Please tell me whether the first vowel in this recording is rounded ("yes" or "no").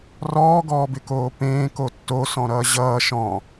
yes